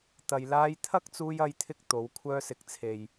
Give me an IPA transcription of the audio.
t̪ɐ˨jlaː˧jt̪ʰɐ˥k̚ t͡suː˧jɐ˧jt̪ʰɪ˧k̚ t̪o˨˧w kʷʰœː˧sɪ˨˥k̚t͡sʰe˨j

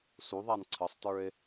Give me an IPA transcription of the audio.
suðˤan ǀʰəsˤtə˞e̯

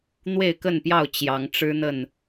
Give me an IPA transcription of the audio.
n̪we˥˨ɪ̯kə˥˨npjɑ˥˨ʊ̯ t͡ɕjɑ˨˦ŋʈ͡ʂɻ̩˦n̪ə˥˨n

